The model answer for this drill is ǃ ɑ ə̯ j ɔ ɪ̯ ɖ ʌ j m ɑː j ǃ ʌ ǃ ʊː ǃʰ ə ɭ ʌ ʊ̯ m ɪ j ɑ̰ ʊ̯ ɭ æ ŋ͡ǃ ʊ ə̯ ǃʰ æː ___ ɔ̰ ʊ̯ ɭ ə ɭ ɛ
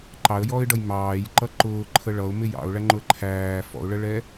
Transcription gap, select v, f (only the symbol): f